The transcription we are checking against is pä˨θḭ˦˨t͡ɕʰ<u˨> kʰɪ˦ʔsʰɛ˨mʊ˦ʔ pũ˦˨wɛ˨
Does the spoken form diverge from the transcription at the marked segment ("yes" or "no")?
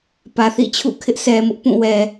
yes